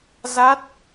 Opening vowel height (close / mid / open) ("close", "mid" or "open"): open